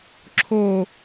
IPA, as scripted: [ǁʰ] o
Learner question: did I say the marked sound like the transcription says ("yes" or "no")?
yes